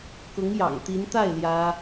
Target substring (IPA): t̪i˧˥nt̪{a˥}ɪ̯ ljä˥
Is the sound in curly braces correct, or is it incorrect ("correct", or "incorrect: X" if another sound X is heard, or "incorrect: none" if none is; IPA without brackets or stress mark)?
incorrect: a˥˩